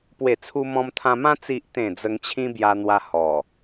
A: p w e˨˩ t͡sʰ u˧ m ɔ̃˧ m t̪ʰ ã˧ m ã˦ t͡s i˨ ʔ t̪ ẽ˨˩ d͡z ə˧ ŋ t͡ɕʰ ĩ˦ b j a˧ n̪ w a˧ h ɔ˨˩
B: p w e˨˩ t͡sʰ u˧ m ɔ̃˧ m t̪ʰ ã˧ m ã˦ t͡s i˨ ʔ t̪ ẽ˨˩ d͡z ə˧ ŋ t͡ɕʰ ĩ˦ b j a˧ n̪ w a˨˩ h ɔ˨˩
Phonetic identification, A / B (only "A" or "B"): A